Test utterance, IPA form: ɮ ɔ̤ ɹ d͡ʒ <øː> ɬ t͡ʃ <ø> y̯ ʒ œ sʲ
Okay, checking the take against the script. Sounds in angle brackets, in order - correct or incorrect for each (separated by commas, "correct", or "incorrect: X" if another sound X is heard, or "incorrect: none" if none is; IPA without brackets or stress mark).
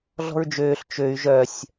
correct, correct